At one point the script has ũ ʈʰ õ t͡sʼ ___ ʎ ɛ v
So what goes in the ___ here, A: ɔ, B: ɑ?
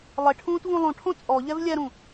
A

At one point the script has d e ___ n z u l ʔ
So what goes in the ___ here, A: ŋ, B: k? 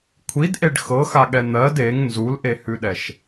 A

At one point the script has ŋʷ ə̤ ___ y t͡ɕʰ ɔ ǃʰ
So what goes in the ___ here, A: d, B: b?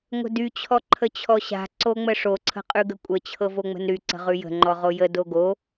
A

